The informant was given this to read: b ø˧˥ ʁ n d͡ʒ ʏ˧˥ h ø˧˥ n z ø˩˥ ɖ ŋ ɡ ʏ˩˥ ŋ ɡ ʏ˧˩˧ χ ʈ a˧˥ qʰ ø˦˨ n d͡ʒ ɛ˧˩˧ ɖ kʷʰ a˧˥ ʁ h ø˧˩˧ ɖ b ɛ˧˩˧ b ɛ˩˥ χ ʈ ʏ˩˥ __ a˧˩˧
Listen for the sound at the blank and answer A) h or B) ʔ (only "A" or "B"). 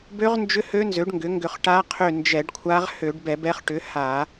A